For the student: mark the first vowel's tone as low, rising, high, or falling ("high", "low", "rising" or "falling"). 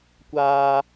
high